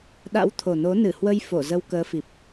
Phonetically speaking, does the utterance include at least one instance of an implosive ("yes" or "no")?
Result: yes